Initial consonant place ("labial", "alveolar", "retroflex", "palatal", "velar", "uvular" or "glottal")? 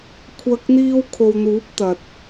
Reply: velar